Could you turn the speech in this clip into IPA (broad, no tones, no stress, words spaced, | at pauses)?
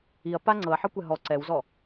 iɐ̯ pa ŋ͡ǀɤɐ̯ħɤkʷɛ ɦɔ ǀɛwzɔ